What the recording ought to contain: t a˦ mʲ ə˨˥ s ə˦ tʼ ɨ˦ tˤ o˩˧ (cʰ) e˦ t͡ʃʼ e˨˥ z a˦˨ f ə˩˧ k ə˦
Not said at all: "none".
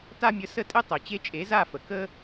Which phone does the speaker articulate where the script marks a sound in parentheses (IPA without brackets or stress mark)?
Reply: t͡ɕ